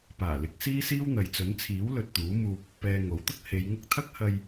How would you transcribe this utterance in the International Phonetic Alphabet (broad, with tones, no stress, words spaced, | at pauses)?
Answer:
paː˨˩lɪ˨˥k̚ siː˥siː˥wn̪ɐ˨jt͡sɵ˨˥n t͡sʰiː˨˥wlɵ˨t̚ t̪uː˨˥muː˧p̚ | pɛː˧ŋo˨˥wt̪ʊ˥k̚ he˨˧jŋʊ˥k̚ t̪ʰɐ˥k̚hɐ˧j